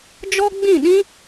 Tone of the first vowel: high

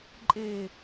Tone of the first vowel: low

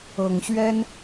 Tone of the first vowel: low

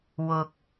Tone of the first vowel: low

